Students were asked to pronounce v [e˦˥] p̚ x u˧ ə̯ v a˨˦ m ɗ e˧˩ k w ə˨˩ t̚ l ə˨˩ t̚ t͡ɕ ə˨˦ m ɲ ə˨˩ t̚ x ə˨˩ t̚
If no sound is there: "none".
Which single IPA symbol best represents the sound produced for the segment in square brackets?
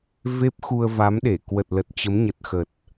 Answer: e˦˥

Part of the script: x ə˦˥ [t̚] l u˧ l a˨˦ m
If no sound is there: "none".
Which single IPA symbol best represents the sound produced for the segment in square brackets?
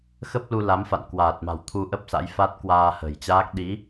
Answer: p̚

